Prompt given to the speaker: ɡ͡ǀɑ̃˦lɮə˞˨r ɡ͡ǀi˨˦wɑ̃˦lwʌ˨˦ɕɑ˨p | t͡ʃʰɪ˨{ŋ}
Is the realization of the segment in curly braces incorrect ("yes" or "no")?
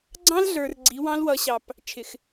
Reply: yes